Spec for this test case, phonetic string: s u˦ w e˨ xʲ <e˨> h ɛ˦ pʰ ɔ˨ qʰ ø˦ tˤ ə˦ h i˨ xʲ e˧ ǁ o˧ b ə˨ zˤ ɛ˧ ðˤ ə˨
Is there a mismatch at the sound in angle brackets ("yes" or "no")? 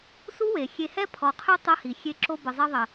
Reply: yes